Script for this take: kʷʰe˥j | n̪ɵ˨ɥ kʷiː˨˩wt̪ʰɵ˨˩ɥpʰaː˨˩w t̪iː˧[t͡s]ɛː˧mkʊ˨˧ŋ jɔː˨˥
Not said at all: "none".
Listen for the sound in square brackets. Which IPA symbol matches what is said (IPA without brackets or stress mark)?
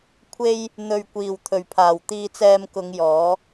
t͡s